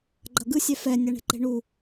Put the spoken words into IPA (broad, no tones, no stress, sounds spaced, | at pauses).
ɡ͡ǃ ʌ ɡ ɯ sʲ ɛ f ɛ nʲ a ɳ e̤ ǃ e̤ ɳ u